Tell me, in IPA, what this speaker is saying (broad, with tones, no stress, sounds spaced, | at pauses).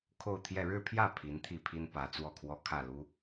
kʰ o˥˧ ʊ̯ t̪ʰ j ɛ˥˧ ɻ ɻ̩˥˧ pʰ j ä˥˩ pʰ i˧˥ n t̪ʰ i˥˩ pʰ i˥ n p ä˧˥ t͡s w ɔ˥˩ kʰ w ɔ˥ kʰ ä˥˩ l u˥